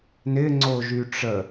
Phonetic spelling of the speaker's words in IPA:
n ɪ ŋ͡ǀ o ʒ y ʈ͡ʂ ə

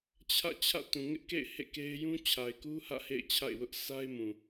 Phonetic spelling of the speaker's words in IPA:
t͡ɕʰ ä̰˦˨ t͡ɕʰ ä̰˦˨ t ũ˨ ŋ ɪ˦ ʔ k ḛ˦˨ ɪ̯ h ḛ˦˨ k e˦ ɪ̯ j ũ˦ t͡ɕʰ a˨ ɪ̯ k u˦ h ä̰˦˨ h ḛ˦˨ ɪ̯ t͡ɕʰ a̰˦˨ ɪ̯ w ʊ˦ ʔ sʰ a˦ ɪ̯ m ũ˨

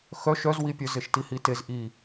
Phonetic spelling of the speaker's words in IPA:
x œ ʃ œ z w i pʲ œ z e ʃ t i h i t e z ʔ i

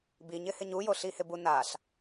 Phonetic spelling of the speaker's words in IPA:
b i ɲ ɪ h ɪ ɲ u j o ɬ i h ɪ b u n a ɬ

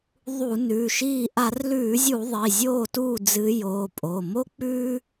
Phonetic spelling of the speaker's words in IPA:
ðˤ u˧˩˧ n ʉː˩˧˩ ʃ iː˧˩ ʔ a˧˩˧ r l ʉː˧˩˧ zʲ u˧˩˧ ðˤ i˩˧˩ zʲ oː˥˩ t uː˥˩ d͡z ɨ˨˦ j oː˩˧˩ pʼ o˩˧˩ m o˦ k͡p ʉː˦

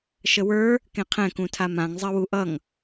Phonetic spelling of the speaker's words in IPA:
ʃ ə w ə˞ | k ẽ qʰ ɛ̃ k ũ tʰ a m ã ŋ zˤ ɜ w u ʔ ʌ ŋ

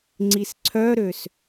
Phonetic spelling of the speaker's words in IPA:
ŋ͡ǀ i s ǀʰ œ ɾ ø s

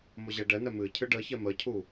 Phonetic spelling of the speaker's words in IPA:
m o ʑ ɛ ɖ ɛ n ɛ m ɨ cʰ ɨ ɖ ə ç ɛ m ə cʰ u

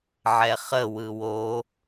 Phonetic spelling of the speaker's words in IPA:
ʕ ɛ χ ə w ɯ w o

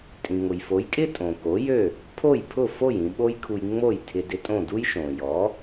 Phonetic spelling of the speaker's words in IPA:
tʼ ĩ˩ ŋ ʊ˩ j f o˩˥ j kʼ ɪ˥ tʼ õ˩ k o˩˥ j ø˥˩ | pʰ o˥˩ j pʰ ʊ˥˩ f o˥˩ j ĩ˧ ɓ o˥ j kʰ u˧ j ŋ͡m o˥˩ j tʰ ɪ˧ d ɪ˧ tʼ õ˥˩ d u˥ j ʃ õ˩ j ɔ˩˥

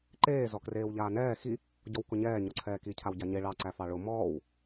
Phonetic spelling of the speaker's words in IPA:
ǃ eː z ɔ k r eː w ʎ aː n ɛː x i | ɟ ɔ w k ʊ ɲ ɛː ɲ ɔ ǀʰ ɛː k i cʰ a w ɟ a ɲ e ɭ ɑ ǀ æ f ɑ ɭ ʊ m ɔː w

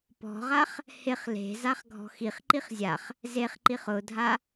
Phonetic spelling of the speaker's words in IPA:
p ɔ̤ ʁ a χ | h ɪ χ l e̤ z a χ ɡʱ ɔ̤ x i χ ǃ i χ zʲ a χ | z e χ ǃ i χ ʊ dʱ a

